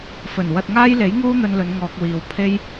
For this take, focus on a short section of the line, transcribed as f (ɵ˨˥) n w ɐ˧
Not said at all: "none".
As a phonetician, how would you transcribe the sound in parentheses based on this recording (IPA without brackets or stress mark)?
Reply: ɵ˨˩